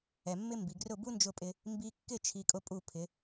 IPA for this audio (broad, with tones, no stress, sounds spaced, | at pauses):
ɛ˩ mː ɪ˥ m b i˩ ɡ r ʊ˥˩ b u˥ n d͡ʒ ʊ˥˩ pʼ ɪ˧ | m b i˧ kː ɪ˥˩ t͡ʃʰ i˧ kʼ ʊ˥ pʼ u˥˩ pʰ ɪ˩˥